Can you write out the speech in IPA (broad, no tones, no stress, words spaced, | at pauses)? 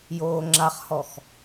joːŋ͡ǁaχhɔx